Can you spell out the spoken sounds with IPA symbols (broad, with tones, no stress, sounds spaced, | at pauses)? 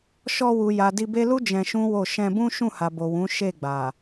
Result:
ʃ ɔ˧ w u˨ j a˨ d i˧ b e˦ l u˦ d͡ʒ ɛ̃˧ ʃ ũ˦ w o˦˨ ʃ ɛ̃˧ b ũ˦ ʃ ũ˦˨ h a˨ b o˨ w ũ˨˦ ʃ e˦˨ ɡ͡b a˨